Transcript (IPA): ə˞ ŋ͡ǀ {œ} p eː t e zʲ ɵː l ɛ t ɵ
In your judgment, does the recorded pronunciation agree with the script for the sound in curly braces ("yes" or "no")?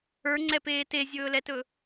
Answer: no